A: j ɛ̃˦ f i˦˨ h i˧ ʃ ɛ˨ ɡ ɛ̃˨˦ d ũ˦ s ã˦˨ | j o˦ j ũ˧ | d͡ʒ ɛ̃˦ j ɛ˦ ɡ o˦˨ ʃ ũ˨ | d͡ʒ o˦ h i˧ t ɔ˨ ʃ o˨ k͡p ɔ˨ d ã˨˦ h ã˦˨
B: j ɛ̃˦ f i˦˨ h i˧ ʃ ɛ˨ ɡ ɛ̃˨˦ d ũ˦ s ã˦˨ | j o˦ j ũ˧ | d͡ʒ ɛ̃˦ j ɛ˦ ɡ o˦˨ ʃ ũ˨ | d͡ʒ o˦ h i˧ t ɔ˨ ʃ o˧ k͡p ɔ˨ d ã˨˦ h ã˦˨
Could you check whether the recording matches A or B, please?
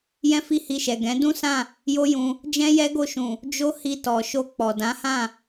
B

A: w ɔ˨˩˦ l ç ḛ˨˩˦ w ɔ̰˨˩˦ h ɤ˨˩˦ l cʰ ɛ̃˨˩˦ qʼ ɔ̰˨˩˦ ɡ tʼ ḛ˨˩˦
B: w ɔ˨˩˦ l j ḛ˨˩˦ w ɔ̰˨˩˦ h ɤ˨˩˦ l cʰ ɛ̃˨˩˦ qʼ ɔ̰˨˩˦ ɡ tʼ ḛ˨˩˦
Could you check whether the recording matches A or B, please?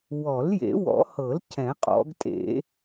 B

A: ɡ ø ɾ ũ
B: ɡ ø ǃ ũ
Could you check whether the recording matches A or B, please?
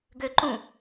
B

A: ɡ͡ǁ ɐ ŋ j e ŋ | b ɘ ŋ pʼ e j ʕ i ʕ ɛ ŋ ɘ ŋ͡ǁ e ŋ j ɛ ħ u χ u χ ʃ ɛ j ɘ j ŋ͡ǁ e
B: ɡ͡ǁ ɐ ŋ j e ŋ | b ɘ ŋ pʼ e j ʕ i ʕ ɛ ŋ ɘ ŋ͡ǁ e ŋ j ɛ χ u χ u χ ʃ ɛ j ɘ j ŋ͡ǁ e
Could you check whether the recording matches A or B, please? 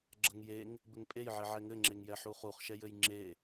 A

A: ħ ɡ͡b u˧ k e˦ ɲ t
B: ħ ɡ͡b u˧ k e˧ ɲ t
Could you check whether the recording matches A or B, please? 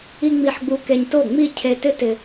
B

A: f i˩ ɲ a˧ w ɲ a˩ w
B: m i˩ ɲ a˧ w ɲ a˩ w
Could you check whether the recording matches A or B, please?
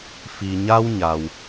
A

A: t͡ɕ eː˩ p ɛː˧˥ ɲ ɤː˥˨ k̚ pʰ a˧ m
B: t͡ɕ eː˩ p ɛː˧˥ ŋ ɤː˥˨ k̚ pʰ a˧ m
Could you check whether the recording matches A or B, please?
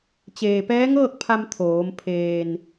B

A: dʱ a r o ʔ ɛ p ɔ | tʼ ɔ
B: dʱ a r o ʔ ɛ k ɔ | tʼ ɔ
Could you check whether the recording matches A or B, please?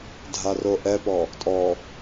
A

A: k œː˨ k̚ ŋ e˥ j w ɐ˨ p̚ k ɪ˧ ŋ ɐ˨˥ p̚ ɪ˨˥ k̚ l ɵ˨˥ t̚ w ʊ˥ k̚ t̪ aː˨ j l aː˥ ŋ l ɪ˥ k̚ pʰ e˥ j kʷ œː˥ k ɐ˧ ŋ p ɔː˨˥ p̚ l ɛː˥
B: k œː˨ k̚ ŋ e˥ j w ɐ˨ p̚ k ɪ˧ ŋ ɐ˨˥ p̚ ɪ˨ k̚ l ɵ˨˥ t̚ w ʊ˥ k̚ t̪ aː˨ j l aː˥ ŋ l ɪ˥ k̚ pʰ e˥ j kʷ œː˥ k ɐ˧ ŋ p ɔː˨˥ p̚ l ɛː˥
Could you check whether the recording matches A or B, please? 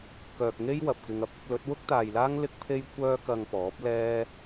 A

